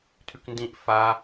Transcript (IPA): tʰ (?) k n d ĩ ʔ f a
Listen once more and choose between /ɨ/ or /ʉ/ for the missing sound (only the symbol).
ʉ